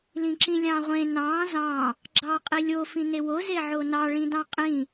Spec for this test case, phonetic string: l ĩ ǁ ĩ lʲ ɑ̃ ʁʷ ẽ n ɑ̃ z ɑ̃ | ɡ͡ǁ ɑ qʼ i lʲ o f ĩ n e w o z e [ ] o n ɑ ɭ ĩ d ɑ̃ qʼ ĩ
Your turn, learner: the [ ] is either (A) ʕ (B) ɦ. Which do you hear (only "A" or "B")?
A